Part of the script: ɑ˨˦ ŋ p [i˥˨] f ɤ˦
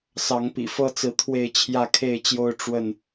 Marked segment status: incorrect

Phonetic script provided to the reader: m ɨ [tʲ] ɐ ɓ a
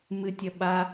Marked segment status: correct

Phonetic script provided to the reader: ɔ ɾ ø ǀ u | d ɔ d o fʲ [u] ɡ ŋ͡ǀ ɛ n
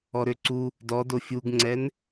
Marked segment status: correct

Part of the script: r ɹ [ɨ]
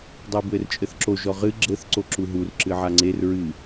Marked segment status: correct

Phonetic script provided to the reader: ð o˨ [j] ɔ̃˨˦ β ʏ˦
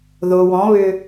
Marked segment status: incorrect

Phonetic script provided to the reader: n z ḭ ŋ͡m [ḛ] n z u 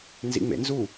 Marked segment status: correct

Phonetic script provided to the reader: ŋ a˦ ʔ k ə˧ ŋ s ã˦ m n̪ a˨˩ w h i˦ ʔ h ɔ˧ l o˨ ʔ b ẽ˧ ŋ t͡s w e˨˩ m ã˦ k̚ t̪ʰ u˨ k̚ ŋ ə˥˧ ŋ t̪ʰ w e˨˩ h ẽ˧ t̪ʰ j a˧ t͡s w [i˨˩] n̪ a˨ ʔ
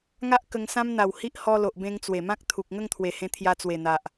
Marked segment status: incorrect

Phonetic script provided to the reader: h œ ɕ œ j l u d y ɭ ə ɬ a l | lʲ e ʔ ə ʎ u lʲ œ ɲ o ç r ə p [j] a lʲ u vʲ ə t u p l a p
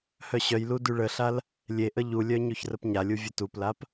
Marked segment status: incorrect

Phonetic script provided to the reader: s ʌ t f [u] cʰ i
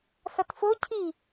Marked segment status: incorrect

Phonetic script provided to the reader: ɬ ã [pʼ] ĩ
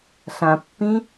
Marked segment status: incorrect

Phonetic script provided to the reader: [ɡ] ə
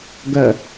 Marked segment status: correct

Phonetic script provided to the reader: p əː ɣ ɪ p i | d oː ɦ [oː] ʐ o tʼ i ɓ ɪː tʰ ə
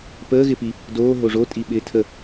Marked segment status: incorrect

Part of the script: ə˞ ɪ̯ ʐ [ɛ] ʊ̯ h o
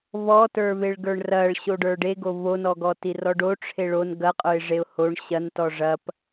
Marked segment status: incorrect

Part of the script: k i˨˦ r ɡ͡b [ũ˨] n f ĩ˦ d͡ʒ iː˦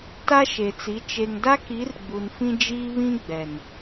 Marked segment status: incorrect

